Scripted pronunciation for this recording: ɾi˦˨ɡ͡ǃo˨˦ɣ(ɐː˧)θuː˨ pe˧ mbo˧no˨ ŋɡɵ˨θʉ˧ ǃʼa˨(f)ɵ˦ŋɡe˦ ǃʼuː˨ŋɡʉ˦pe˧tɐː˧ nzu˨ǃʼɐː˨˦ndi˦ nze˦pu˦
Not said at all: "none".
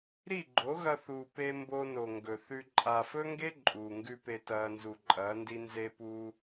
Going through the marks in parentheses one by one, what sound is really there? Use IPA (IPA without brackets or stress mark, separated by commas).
ɐ˧, f